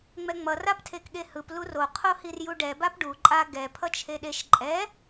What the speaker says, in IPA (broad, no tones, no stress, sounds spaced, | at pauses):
ŋ͡m ɛ ŋ͡m ʌ r a p tʰ e k ɠ e h ɯ p l u r o qʰ o h i r j u ɖ ɛ b a p ɖ u ǃʼ a ɡ ɛ pʰ ʌ t͡ʃʰ e ɗ e ʃ ǃʼ ɛ